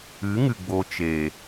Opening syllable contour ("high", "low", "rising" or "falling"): rising